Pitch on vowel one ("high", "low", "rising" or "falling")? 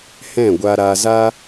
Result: falling